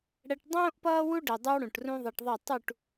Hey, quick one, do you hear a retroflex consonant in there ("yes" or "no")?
yes